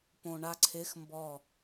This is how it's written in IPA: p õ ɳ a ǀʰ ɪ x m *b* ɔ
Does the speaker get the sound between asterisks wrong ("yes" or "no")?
no